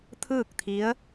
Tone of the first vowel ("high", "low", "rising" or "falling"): falling